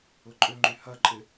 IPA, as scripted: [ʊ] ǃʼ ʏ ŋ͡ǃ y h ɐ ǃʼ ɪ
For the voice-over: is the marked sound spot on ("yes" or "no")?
yes